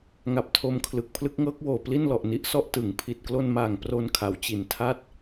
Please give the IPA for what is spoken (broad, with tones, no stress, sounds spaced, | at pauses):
ŋ a˨˩ p̚ tʰ o˧ m kʰ l ɯ˨˩ k̚ pʰ l ɯ˦˥ k̚ ŋ ɤː˦˥ k̚ w oː˨˩ p l i˥˩ n l ɔ˨˩ ʔ n i˦˥ ʔ s ɔ˥˩ ʔ t ɯ˩˦ ŋ pʰ i˨˩ t̚ k l o˧ n m aː˨˩ ŋ p r o˧ n kʰ a˩˦ w t͡ɕ i˨˩ n tʰ a˥˩ t̚